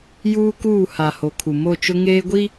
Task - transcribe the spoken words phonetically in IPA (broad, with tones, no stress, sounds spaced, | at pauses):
j uː˦ k uː˦˨ h a˨ h o˨ kʰ u˨ m o˦˨ t͡ʃ ʊ˦ ŋ eː˦ ɡʷ i˦